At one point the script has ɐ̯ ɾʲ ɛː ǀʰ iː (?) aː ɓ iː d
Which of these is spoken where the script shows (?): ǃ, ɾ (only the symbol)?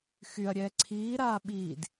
ɾ